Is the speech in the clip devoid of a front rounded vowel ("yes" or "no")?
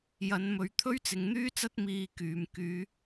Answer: no